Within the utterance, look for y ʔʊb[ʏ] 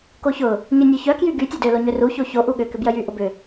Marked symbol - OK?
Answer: yes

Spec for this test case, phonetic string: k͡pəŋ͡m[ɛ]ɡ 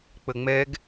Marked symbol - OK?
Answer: yes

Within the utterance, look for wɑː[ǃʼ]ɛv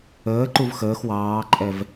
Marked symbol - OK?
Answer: yes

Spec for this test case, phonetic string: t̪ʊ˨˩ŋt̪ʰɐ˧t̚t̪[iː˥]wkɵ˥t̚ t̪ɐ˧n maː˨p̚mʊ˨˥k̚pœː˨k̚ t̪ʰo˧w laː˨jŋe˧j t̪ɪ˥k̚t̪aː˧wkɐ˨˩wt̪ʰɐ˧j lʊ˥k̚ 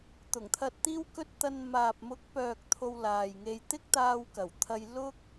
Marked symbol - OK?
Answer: yes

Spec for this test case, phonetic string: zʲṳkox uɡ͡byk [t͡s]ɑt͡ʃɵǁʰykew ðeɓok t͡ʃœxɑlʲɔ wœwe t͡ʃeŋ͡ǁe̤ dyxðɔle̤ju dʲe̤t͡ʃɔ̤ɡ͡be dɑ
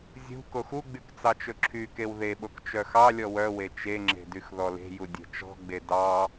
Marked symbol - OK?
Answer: yes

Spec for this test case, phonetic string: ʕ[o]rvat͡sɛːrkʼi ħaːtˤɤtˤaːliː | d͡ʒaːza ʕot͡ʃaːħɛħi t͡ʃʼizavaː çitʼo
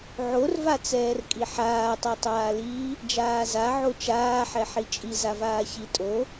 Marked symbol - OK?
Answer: yes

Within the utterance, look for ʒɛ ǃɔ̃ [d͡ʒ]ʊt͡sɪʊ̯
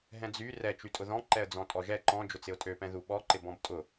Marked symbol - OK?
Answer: yes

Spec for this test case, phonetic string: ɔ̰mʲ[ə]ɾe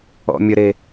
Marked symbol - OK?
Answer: yes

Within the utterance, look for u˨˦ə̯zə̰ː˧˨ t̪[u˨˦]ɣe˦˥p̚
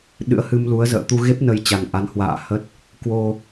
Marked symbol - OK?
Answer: no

